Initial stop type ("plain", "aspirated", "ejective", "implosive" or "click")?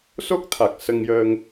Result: plain